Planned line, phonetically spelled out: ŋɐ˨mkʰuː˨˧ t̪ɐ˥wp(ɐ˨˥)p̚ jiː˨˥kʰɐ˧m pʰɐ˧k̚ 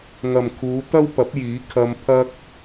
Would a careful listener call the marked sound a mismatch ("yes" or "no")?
no